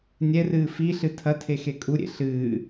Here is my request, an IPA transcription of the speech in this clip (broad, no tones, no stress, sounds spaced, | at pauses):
nʲ ɛ r ɨː f i ɬ ɨ tʰ ɐ tʰ e x e kʼ u ɾʲ ḛ ɬ ɨː